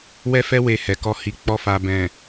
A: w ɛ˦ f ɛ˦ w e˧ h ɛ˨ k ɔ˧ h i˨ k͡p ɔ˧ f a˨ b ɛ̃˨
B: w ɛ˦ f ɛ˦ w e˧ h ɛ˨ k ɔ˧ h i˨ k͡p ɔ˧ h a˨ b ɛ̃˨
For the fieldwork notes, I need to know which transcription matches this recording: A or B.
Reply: A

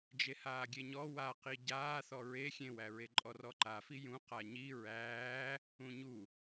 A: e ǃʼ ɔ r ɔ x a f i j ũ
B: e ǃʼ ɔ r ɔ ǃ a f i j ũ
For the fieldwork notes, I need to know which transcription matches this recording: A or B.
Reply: B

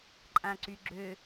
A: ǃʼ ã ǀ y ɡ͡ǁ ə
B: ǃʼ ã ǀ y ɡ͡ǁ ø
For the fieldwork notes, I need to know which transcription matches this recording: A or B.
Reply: B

